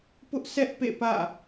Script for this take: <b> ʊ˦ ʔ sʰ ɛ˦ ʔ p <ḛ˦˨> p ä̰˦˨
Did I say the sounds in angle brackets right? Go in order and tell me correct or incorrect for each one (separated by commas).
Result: incorrect, correct